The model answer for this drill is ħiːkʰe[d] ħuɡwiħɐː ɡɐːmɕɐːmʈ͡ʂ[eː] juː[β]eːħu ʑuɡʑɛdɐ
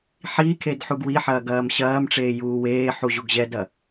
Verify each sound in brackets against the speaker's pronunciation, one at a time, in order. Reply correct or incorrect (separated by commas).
correct, correct, incorrect